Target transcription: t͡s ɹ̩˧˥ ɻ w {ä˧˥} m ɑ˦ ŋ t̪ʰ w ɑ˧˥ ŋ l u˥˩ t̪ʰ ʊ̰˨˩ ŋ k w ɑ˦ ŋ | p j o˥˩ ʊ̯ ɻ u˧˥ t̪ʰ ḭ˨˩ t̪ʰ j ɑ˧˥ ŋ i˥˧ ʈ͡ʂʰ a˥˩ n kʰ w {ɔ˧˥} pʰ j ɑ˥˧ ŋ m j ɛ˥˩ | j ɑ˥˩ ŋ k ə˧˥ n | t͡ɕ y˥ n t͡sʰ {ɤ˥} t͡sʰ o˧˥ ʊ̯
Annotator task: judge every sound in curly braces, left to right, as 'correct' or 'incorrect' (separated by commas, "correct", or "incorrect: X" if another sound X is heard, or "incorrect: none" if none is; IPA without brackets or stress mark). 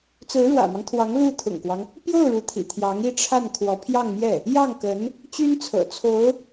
incorrect: ä̰˨˩, correct, incorrect: ɤ̰˨˩